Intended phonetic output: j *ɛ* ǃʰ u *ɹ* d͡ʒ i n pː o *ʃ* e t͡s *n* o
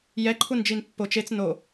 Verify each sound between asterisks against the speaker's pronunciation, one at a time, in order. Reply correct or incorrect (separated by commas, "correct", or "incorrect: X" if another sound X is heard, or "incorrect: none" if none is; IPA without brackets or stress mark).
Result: correct, incorrect: n, incorrect: t͡ʃ, correct